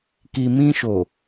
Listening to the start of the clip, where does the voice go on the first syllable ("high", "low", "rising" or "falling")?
low